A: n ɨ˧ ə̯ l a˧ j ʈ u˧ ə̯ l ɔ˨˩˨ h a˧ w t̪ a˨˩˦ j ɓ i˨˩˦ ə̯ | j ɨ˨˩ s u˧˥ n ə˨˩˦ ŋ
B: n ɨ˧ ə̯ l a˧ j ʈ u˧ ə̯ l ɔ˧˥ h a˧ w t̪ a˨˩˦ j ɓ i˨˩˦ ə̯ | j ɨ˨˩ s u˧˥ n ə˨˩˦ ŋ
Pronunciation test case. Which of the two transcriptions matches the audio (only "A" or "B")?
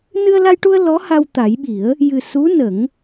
B